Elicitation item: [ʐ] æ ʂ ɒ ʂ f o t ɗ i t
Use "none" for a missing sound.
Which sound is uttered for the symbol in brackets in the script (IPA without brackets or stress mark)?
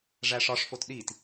ʐ